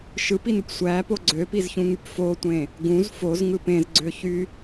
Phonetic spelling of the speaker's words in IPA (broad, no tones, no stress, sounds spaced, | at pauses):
ʃ ɯ p i n u p sʷ æ p o ɡ͡ǀ ø p i z ç ũ ŋ y p f o tʷ ẽ | ɡ ũ z f o z ŋ ɯ p ẽ z ɡ͡ǀ ø ç y